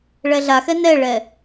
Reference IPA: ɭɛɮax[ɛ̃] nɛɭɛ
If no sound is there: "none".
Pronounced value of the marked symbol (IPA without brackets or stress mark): ɛ